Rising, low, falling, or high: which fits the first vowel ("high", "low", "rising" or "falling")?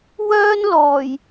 high